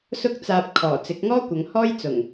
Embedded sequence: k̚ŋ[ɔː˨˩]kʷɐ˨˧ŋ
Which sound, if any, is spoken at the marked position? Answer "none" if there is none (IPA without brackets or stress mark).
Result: ɔː˥